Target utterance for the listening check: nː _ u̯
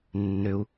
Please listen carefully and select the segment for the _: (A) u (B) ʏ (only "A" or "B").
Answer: B